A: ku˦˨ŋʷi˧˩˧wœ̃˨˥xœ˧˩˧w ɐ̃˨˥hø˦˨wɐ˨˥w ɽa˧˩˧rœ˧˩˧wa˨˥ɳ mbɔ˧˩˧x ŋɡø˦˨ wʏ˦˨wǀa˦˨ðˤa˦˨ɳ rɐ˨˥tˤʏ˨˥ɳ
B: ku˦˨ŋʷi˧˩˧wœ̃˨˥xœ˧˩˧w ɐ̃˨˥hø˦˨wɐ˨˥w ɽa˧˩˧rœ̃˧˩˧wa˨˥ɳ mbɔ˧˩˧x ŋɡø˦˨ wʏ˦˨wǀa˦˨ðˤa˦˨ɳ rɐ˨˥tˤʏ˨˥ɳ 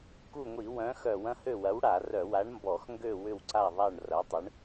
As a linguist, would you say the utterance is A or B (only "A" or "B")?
A